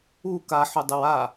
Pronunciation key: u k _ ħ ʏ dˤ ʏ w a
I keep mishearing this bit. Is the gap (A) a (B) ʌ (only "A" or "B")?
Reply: A